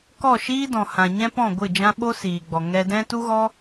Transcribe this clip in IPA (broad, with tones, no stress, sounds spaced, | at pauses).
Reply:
k ɔ˦˨ ʃ iː˦ d ɔ̃˨ h ã˨ ɲ ɛ̃˦ p ɔ̃˦˨ ɡʷ ɨ˦˨ d͡ʒ ã˦ ɓ o˦ s iː˨ ɡ͡b ɔ˨ ŋ ɛ˧ d ɛ̃˦ t u˦ ɣ ɔ˦